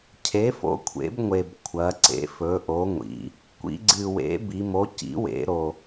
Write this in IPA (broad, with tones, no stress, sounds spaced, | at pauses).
cʰ e˨˥ f o̰˨˥ kʷʰ ḛ˨˥ b ŋʷ e˨˩ b kʷʰ ɐ˩˧ ǀ ḛ˨˥ f ɵ˨˥ ʔ o˨˥ ŋʷ ḭ˩˧ | kʷ ḭ˩˧ ɡ͡ǀ ɨ˨˩ w ḛ˨˥ b i˩˧ m o˨˥ c ḭ˨˥ w ḛ˩˧ ɾ o˨˩